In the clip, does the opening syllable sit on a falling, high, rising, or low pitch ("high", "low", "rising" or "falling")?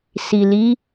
low